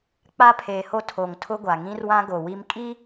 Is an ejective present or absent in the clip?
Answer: present